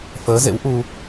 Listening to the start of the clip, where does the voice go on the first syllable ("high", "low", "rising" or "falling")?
rising